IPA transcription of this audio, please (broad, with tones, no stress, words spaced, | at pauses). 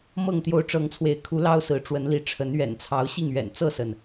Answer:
mɤ˥˨ŋt̪jo˦ʊ̯ ʈ͡ʂɤ˨˦ŋt͡sʰwe˨˦ɪ̯kʰu˨˦ lɑ˦ʊ̯sɹ̩˨˦ʈ͡ʂwə˨˦nli˨˦ ʈ͡ʂʰə˨˦nɥɛ̰˨˩nt͡sʰɑ˨˦ʊ̯ ɕi˥˨ŋɥɛ̰˨˩n t͡sɤ˥˨sə˩n